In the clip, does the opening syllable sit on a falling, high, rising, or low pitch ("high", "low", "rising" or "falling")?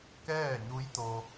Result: falling